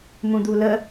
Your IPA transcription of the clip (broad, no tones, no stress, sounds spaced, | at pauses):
m ũ d̪ u l ə